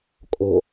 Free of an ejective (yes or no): no